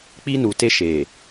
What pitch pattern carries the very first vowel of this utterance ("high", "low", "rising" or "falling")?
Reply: high